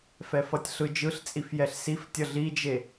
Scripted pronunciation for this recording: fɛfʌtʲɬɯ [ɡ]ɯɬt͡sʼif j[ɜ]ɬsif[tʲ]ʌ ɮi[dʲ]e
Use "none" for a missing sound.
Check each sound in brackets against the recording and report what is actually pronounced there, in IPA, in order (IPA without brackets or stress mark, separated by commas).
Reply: d͡ʒ, ɛ, tʲ, d͡ʒ